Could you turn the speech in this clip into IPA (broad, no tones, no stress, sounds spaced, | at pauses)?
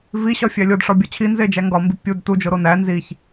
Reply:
v i ɕ ɒ fʲ æ lʲ o d ʂ ɒ bʲ ɒ t͡ɕʰ i n z e d͡ʒ æ ŋ ɡ ɒ m b i pʲ u d t u d͡ʒ o ɾ o n æ n z i ç